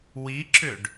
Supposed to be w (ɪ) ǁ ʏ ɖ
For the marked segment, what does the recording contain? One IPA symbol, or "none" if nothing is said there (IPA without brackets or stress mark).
i